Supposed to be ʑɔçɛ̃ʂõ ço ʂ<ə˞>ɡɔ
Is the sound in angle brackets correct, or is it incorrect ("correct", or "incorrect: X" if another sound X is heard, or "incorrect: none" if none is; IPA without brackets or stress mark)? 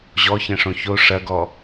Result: incorrect: ɐ